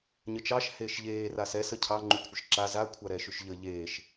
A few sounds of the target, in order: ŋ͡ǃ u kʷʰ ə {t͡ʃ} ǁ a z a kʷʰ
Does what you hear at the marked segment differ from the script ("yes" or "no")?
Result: yes